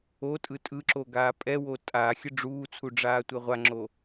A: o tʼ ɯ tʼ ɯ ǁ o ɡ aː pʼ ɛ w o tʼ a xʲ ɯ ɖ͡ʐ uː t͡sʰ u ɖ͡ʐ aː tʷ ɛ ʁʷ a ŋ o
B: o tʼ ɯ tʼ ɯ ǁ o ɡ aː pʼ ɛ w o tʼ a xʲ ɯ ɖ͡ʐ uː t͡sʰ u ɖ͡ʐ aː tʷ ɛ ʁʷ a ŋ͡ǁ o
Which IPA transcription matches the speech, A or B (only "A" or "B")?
B